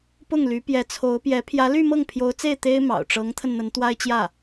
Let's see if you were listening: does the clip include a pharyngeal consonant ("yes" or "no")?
no